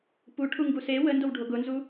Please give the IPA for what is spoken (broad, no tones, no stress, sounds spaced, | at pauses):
p u ʈʰ u ŋ ɡ u s e w ə n d o w ɖʱ o ɡ ʊ n z u